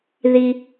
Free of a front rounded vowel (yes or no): yes